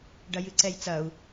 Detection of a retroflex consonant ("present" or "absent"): present